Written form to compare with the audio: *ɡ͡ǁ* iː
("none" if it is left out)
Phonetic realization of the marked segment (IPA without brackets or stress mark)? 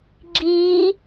ɡ͡ǁ